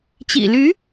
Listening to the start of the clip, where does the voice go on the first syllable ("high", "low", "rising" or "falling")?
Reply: low